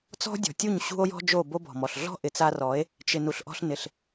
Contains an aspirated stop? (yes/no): no